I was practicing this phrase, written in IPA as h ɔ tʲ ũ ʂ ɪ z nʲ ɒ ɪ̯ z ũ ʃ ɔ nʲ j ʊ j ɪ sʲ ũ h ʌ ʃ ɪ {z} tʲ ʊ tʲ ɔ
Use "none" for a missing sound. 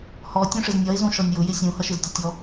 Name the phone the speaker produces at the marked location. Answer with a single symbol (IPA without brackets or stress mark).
z